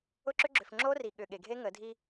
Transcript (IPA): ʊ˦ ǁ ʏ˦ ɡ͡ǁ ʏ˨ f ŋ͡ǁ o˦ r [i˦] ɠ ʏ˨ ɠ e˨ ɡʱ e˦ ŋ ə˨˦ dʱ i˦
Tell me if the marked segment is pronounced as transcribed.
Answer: no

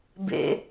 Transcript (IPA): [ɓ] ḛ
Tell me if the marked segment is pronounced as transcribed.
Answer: no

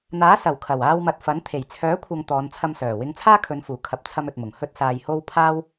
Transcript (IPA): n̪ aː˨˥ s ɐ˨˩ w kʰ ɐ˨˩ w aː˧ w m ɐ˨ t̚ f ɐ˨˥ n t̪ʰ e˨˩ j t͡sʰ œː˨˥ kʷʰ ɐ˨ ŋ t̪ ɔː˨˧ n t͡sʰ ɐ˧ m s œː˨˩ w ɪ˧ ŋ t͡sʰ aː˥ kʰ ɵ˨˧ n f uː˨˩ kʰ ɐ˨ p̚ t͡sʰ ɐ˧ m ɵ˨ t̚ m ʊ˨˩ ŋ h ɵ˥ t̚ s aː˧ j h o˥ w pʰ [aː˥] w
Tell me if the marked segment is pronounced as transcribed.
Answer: yes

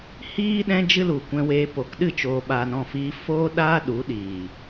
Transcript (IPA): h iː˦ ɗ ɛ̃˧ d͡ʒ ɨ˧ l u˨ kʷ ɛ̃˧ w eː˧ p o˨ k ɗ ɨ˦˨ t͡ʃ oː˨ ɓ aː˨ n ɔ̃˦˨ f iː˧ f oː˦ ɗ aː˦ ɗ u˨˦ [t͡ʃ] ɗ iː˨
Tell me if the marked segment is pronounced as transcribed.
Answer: no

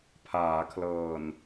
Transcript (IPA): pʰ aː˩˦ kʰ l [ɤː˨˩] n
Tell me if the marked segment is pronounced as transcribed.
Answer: yes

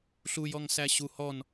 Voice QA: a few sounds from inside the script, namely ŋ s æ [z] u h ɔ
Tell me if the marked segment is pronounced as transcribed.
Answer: no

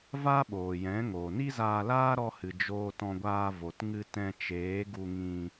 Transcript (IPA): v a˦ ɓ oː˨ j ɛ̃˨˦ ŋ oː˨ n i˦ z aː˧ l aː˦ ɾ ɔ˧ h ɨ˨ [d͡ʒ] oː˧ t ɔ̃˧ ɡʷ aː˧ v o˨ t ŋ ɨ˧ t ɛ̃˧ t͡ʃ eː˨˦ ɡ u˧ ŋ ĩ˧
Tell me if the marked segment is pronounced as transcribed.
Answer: yes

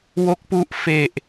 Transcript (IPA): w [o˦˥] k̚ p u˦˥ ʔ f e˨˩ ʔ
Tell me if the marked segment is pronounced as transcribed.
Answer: yes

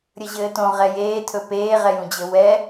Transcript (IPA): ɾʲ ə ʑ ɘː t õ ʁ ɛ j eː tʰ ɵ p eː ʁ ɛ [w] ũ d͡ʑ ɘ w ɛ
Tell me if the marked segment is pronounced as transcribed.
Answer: no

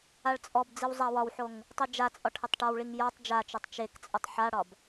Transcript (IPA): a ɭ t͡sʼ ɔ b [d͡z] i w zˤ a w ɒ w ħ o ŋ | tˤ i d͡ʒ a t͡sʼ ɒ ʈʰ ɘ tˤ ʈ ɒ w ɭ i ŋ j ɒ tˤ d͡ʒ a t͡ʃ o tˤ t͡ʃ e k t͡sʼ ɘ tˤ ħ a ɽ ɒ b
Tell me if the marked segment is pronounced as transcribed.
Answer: yes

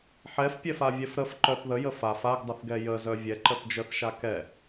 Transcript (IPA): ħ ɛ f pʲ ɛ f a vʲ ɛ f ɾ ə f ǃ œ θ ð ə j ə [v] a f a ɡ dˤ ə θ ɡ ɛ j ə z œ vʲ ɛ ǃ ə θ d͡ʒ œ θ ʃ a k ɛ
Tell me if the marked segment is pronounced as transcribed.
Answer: no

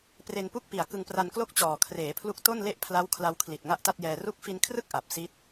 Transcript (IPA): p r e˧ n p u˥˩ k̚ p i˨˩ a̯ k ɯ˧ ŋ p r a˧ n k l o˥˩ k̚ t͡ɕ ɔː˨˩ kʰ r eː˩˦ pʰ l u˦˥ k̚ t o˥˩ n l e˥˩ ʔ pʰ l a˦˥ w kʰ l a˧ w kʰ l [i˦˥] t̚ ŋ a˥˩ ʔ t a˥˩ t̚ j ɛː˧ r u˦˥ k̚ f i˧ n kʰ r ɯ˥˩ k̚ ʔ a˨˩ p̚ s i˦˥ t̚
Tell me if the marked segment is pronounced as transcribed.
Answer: no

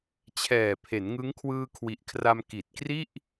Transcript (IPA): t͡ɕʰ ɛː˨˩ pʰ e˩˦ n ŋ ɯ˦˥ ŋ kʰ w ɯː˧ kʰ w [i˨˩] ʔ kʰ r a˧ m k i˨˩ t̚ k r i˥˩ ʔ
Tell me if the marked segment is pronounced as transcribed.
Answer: yes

